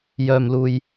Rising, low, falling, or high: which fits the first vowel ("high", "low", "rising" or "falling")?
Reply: low